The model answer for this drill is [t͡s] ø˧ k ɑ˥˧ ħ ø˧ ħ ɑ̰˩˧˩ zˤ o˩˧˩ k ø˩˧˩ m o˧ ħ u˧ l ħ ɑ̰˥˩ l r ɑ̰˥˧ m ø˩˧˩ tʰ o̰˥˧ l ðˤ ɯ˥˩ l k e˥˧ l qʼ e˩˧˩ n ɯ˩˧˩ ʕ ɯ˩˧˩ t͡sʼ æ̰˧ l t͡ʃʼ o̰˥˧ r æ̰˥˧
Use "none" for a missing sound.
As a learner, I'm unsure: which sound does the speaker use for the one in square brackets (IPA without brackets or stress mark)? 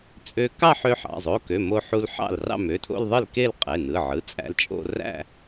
t͡sʼ